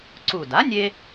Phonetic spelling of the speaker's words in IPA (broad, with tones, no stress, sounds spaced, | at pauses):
ǀ u˧˩ d a˩˥ nʲ e˧